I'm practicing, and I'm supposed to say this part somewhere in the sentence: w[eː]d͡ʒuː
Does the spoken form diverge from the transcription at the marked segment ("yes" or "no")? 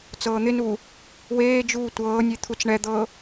no